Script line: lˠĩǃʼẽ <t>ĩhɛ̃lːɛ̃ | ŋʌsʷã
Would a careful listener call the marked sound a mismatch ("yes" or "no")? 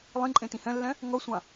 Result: no